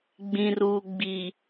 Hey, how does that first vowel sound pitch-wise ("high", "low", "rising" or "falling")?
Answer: low